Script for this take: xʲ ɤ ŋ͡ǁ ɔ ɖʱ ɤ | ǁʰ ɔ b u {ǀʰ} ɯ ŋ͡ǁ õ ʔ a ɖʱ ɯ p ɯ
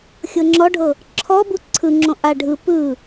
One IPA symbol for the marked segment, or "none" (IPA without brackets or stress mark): ǀʰ